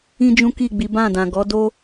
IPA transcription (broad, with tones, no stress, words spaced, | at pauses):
ĩ˦d͡ʒũ˦ki˦˨ɡ͡bi˨˦ bã˦˨dã˨ɡɔ˨˦do˦